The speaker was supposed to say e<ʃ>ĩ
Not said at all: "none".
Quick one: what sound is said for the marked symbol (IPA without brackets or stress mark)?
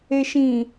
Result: ʃ